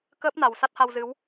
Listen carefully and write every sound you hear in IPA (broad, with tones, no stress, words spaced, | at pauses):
kəː˦˥p̚na˨˩w sa˦˥t̚ha˧w zɨ˨˦w